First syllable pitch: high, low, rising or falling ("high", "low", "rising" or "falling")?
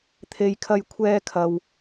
low